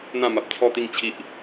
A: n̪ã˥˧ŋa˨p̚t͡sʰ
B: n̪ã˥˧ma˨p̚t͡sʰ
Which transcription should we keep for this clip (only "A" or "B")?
B